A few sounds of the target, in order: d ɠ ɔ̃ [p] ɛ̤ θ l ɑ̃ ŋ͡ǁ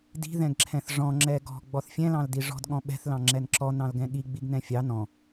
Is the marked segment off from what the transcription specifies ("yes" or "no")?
yes